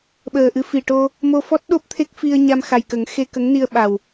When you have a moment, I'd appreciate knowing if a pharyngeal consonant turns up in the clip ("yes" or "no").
no